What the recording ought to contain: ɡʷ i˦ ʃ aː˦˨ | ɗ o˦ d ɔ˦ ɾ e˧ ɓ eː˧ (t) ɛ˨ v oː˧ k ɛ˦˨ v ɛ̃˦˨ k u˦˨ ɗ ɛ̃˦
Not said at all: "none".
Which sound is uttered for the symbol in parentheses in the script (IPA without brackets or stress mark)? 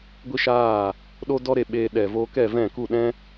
ɗ